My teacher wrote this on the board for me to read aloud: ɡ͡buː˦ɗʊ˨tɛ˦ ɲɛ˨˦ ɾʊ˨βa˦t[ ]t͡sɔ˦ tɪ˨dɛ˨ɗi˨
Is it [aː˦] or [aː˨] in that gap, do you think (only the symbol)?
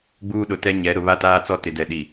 aː˦